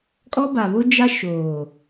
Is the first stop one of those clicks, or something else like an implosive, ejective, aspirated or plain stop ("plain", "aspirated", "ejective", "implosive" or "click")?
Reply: ejective